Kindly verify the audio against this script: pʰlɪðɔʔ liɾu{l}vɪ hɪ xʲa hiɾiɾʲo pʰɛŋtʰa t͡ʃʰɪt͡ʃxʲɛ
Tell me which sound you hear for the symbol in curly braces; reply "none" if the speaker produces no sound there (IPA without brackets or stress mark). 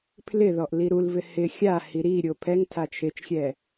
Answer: l